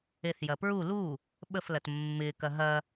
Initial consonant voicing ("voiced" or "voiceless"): voiceless